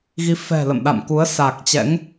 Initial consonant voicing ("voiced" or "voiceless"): voiced